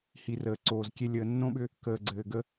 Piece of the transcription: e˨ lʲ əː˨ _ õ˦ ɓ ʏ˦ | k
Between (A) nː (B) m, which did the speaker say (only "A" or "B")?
A